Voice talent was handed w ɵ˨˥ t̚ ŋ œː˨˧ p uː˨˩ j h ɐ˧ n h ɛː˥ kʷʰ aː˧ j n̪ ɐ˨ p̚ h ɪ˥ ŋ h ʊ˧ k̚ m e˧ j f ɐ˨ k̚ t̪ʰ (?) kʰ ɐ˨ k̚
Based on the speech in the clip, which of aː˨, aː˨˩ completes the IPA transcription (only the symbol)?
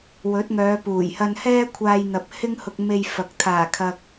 aː˨˩